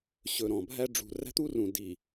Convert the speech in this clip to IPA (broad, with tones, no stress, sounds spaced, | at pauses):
ɕ ɵ˨ ɾ ɔ̃˨ bʱ æ˦ ɖ͡ʐ ṳ˨ r æ̤˦ t̪ u˦ r ũ˨ d i˨